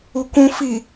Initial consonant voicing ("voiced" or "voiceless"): voiceless